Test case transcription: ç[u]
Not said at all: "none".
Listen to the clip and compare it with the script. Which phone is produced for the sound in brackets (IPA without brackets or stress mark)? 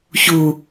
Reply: u